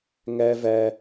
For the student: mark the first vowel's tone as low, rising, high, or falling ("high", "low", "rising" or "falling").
high